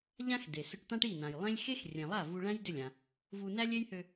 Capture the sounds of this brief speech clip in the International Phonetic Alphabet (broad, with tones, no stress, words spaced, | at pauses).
ʎã˥x de˩sʏ˧ʈt̪ã˥ʈ i˥˩nã˩jlˠẽ˥lʲ xe˥xrʲẽ˩lˠa˥˩ vu˧ɭæ̃˥j dʏ˥˩lʲã˩ | vu˧næ˥ lʲe˥jhø˧